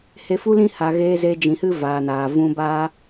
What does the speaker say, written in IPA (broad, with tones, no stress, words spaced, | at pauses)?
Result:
he˧fu˦lĩ˦ ha˨ɣeː˧ze˧ d͡ʒĩ˨hɨ˦ vaː˨naː˨ vũ˧baː˦